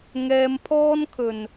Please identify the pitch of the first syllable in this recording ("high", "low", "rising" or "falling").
high